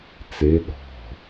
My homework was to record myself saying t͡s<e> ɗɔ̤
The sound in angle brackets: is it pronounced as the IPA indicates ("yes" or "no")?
yes